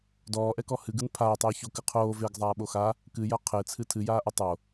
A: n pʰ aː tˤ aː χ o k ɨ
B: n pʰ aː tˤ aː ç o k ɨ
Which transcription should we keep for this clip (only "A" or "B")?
B